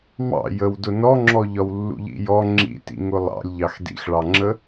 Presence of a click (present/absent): present